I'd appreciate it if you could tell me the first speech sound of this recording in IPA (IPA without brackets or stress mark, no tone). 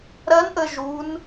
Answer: ɾ